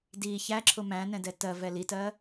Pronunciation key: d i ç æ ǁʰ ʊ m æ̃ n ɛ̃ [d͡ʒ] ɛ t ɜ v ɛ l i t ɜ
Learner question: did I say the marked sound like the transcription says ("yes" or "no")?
no